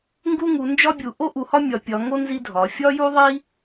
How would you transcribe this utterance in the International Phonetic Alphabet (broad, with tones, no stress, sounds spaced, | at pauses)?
ŋ ɡ u˥ ŋ u˨˦ n d͡ʒ ɒ˥ bʲ u˨˦ ʔ o˥ ʔ u˨˦ h ɒ˥ mʲ ɒ˨˦ pʲ ɒ˨˦ ŋ o˥ n z i˥ dʱ ɒ˨˦ fʲ ɒ˥ j u˥ ðˤ i˥